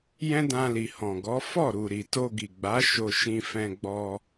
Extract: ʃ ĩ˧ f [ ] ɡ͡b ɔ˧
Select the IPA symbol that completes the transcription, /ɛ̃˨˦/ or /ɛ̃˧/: ɛ̃˧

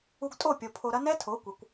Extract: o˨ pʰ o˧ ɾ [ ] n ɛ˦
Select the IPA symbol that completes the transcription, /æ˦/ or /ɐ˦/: ɐ˦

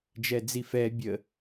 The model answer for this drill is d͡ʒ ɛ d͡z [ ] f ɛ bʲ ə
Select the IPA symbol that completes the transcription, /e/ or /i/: i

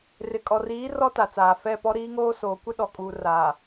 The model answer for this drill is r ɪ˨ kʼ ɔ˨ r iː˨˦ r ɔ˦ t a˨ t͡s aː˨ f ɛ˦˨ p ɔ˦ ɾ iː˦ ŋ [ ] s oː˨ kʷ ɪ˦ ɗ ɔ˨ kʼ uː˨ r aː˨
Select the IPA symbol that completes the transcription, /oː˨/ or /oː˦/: oː˦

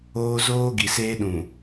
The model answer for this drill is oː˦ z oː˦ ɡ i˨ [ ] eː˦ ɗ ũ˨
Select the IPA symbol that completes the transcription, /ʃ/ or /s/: s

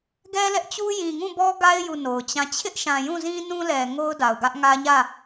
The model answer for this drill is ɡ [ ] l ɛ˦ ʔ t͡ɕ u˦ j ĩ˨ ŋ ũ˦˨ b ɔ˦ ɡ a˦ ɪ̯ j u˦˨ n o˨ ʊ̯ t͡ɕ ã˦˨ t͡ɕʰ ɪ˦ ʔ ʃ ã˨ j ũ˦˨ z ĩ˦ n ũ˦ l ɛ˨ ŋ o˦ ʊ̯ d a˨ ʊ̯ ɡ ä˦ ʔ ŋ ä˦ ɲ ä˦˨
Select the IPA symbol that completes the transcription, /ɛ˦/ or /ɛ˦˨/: ɛ˦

